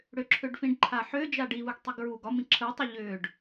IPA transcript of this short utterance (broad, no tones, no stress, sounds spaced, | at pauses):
ɽ ʏ ǁʰ ʏ ɖ f ĩ ɖ ǃʰ a ħ ʏː d͡ʒ a ɖ i v ɯ ɡ tˤ i ɡ ɹ uː ɡ ɒ m ĩ ǁʰ ɯ tˤ ə ʎ ʏː ɖ